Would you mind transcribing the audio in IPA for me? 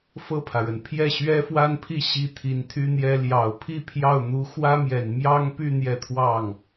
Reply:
f ɤ˥˩ pʰ ä˩ ɻ ə˩ n pʰ j ɛ˥˩ ɕ ɥ ɛ˥ f w a˥ n pʰ i˥˩ ɕ i˥ t̪ʰ i˧˥ n t̪ʰ y˥ n̪ j ɛ˥ l j ɑ˨˩ ʊ̯ pʰ i˥˧ pʰ j ɑ˥˩ ʊ̯ n̪ u˧˥ x w ä˥ m j ɛ˨˩ n m j ɑ˥ ŋ p y˥˧ n̪ j ɛ˥˧ t̪ʰ w ɑ˥˩ ŋ

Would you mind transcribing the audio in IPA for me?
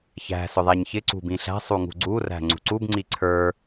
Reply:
ç æ̤ s ʊ ðˤ æ ɲ ç ɪ ǀ ṳ b ĩ ɬ æ̤ sˤ u ŋ ṳ ɡ͡ǀ u r æ̤ ŋ͡ǀ ṳ ǀ u b ŋ͡ǀ i ǀʰ ə˞

